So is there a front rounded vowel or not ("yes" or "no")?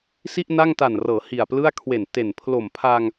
no